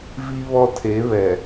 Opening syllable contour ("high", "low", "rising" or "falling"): high